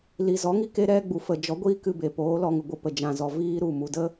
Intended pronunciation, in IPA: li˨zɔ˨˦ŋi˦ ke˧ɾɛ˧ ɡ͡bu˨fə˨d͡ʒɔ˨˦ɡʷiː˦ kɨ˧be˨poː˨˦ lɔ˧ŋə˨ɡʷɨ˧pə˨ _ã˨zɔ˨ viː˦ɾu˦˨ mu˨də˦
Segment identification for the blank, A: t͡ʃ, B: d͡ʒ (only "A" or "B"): B